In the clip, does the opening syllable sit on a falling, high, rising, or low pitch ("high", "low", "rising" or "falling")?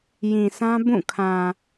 low